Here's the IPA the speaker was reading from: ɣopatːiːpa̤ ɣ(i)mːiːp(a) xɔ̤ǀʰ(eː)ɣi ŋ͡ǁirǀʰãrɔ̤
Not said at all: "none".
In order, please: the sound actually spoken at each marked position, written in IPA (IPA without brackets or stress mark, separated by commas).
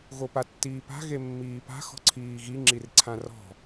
e, a̤, iː